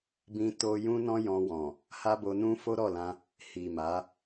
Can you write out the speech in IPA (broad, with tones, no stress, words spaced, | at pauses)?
bĩ˦to˦ jũ˦nɔ̃˦ jɔ̃˧wɔ̃˨ | ha˦bo˧nũ˦ fo˦ɾɔ˦˨lã˧ | hi˨ ma˨˦